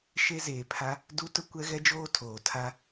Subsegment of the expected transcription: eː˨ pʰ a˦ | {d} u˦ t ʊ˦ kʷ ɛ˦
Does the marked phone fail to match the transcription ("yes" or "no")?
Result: no